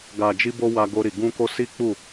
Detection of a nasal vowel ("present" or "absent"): present